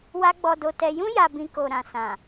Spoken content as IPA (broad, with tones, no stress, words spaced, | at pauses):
wa˦ɡ͡bɔ˧do˧tɛ˧ jũ˦ ja˧bĩ˧ ko˨ɾã˨ sã˨